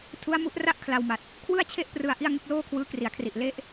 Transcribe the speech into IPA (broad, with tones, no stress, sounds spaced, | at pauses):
tʰ u˦˥ a̯ m u˦˥ ʔ r a˥˩ ʔ kʰ l a˧ w m a˨˩ t̚ | kʰ w ɯ˥˩ a̯ t͡ɕʰ e˥˩ ʔ p r ɯ˧ a̯ ʔ i˥˩ a̯ ŋ ɯ˦˥ k̚ l oː˥˩ kʰ w ɯː˦˥ k r i˩˦ a̯ kʰ r i˨˩ ʔ l e˥˩ ʔ